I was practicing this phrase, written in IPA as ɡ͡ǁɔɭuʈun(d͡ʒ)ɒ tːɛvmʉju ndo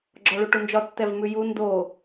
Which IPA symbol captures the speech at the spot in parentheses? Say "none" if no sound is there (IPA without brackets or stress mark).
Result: d͡ʒ